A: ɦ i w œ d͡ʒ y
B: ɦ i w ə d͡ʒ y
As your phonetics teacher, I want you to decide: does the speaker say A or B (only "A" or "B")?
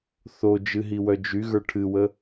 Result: A